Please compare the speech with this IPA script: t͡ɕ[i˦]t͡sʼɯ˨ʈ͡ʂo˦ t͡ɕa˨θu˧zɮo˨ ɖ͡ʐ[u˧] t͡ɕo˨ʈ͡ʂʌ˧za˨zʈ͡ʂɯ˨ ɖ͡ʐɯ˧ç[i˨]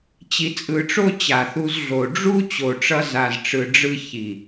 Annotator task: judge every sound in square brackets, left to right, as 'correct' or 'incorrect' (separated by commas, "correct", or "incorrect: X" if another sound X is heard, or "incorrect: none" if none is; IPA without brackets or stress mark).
incorrect: i˨, incorrect: u˦, correct